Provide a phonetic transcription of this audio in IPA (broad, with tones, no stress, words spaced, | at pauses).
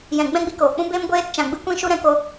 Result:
jɛ̃˨ ɡ͡bɛ̃˦ɡ͡bi˧koː˨ k͡pũ˦beː˦m ɡʷeː˧tt͡ʃã˨ ɡ͡bɨ˦ kʷĩ˦ʃu˦ɾɛ̃˧ko˦